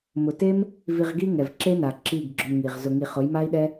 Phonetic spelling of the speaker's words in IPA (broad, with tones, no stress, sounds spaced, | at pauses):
m ʊ˨ t e˦ m | v i˧ ʁ ɡ i˦ ŋ ɛ˨ v ǁ e˦ n a˨ ǁ i˦˨ ɡ ɡ͡ǁ ʊ˧ m ŋ i˨ ʁ z ʊ˧ ŋ i˧ χ ʊ˨˦ j m a˦ i̯ ɗ ɛ˦